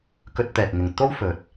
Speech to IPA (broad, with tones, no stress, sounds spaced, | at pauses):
k ɵ˧ t̚ t̪ ɛː˨ k̚ ŋ ɪ˨ ŋ t̪ o˥ w f ɵ˨ t̚